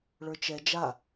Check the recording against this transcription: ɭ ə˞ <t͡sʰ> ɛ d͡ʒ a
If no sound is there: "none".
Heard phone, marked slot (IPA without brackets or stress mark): t͡ʃ